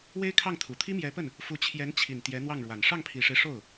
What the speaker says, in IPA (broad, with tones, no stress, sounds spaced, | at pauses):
w e˥ ɪ̯ kʰ ɑ˥˩ ŋ t̪ʰ u˨˩ t̪ʰ i˥ m j ɛ˧˥ p ə˥˩ n | f u˧˥ t͡ɕʰ j ɛ˧˥ n t͡ɕʰ i˨˩ n t̪ j ɛ˧˥ n̪ w ɑ˥˩ ŋ ɻ w a˨˩ n ʂ ɑ˥˩ ŋ pʰ i˨˩ ʂ e˦ ɪ̯ ʂ o˥˩ ʊ̯